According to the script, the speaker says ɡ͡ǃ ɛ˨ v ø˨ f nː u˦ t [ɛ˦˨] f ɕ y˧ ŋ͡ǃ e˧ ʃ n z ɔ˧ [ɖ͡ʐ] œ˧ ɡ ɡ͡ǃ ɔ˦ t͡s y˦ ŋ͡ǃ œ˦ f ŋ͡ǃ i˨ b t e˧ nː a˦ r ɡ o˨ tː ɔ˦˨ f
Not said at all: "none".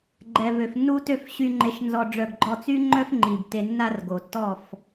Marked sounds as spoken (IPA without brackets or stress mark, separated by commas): ø˦˨, ɖ͡ʐ